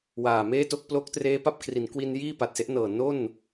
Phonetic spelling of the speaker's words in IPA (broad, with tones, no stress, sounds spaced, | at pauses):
w aː˨˩ m eː˥˩ t o˥˩ k̚ p l o˦˥ k̚ t r eː˦˥ p a˦˥ p̚ kʰ r i˩˦ n k w i˧ n j iː˥˩ p a˨˩ t̚ s e˦˥ ʔ n ɤː˨˩ n o˥˩ n